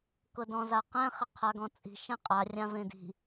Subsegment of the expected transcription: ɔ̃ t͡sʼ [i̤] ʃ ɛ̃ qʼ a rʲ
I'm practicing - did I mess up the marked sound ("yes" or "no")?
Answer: no